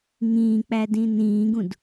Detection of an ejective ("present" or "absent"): absent